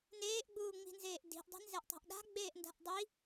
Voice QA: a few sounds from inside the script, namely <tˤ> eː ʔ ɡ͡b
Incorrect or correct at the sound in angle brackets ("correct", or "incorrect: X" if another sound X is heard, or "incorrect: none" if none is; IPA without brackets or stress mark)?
incorrect: n